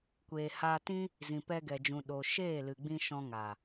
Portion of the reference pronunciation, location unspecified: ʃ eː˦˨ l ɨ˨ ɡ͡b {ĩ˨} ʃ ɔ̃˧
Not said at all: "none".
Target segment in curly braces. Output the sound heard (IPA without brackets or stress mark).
ĩ˧